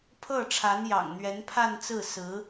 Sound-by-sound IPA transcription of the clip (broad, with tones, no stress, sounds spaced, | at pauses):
pʰ ɤ˥˩ ʈ͡ʂʰ a˧˥ n j ɑ̰˨˩ ŋ n̪ ɥ ɛ˧˥ n pʰ a˥˧ n t͡s ɹ̩˥˩ s ɹ̩˧˥